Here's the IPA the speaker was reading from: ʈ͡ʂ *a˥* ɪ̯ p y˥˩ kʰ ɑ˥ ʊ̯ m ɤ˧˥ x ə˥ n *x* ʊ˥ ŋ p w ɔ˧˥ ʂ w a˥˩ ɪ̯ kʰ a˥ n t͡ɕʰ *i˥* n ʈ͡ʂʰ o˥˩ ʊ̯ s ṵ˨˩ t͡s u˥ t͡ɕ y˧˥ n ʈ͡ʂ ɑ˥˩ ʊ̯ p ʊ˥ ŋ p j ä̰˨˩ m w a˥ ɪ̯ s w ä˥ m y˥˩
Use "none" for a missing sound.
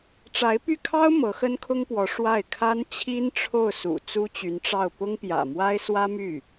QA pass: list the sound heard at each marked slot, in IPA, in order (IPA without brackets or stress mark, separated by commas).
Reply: a˧˥, kʰ, i˥